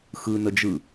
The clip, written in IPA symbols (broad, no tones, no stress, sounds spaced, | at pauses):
x ɯ n ə d͡ʒ ɯ